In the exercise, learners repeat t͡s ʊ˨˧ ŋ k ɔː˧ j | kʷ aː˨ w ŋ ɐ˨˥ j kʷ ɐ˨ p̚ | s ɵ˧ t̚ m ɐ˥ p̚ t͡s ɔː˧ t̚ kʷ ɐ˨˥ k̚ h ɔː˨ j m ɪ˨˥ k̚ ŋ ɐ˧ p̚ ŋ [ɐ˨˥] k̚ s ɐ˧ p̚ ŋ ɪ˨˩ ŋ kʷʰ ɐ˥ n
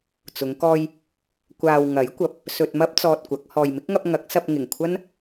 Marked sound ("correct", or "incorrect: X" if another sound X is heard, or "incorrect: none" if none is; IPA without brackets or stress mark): correct